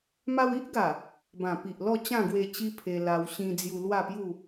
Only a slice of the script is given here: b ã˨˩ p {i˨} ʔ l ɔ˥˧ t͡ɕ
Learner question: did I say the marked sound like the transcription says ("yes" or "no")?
yes